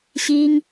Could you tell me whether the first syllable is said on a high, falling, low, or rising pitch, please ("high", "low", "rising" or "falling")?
high